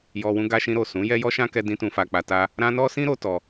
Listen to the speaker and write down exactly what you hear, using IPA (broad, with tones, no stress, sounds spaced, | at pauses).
j ɔ˧ w ũ˦ ɡ a˧ ʃ ĩ˧ ɾ o˨ s ũ˨˦ j ɛ˦ j ɔ˦ ʃ ã˦ k ɛ˦ d ĩ˦ t ũ˧ f a˧ k͡p a˧ t a˦ | ɾ ã˦ n ɔ˦ s ĩ˦ ɾ o˧ t ɔ˧